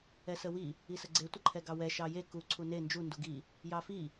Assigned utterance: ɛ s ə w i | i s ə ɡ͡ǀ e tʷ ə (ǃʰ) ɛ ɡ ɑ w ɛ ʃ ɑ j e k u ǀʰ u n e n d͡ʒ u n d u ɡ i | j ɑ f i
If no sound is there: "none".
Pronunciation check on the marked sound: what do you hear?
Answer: ǃʰ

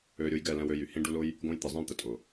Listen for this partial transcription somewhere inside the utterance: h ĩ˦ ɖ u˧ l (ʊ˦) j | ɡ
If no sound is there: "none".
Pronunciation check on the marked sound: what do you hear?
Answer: ʊ˦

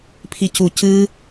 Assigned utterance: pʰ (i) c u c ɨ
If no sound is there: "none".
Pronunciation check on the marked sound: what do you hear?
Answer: i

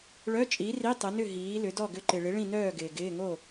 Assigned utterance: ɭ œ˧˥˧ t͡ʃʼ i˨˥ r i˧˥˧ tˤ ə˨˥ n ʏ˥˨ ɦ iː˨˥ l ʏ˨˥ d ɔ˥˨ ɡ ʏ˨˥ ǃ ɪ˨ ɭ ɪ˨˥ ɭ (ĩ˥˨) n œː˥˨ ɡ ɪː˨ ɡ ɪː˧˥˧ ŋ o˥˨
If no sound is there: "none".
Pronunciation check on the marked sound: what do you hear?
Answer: ĩ˥˨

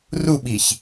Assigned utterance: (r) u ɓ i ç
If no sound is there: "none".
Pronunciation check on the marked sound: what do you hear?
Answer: r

